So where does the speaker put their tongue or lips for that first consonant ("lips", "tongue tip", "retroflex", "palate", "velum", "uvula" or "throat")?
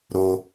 tongue tip